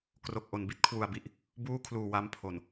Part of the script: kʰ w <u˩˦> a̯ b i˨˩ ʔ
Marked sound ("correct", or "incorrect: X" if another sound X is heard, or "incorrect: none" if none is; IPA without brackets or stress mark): incorrect: u˨˩